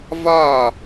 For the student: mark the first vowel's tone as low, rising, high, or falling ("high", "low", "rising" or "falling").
falling